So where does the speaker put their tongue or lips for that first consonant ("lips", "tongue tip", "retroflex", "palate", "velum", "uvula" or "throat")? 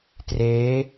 tongue tip